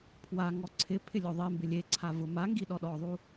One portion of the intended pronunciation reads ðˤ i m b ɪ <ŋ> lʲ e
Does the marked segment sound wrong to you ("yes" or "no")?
yes